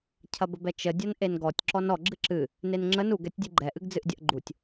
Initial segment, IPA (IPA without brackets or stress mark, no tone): cʰ